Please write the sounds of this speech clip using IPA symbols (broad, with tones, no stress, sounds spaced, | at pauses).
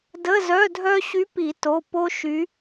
d ə˧˥˧ z œ˧˥˧ dʱ œ˥ ɕ y˧˥ p i˨˩˦ t o˩˧˩ p o˥ ʃ y˧˥